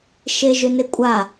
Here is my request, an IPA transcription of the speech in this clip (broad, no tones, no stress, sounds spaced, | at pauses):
ʃ e ʒ ʏ n e kʷʼ a